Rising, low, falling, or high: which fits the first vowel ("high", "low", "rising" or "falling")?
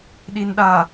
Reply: low